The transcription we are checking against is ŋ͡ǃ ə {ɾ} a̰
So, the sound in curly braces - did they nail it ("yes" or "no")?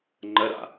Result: yes